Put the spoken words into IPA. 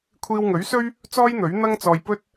kʷʰiː˧wŋɵ˨˥ɥsɵ˥ɥ | t͡sɔː˥jn̪ɵ˨˥ɥn̪ɐ˥ŋt͡sɔː˧j pɵ˥t̚

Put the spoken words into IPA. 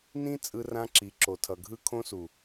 nĩ˦ t͡sʼɯ˧rã˧ǁi˨ ǁo˨tʰʌ˨ɡʱɯ˧ kʰõ˧su˨

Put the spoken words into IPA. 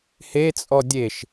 het͡sʼɔ dʲeʃ

